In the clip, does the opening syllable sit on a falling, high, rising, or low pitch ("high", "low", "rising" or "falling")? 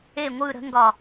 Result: falling